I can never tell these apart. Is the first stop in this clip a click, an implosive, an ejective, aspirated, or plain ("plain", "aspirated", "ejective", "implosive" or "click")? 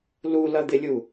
plain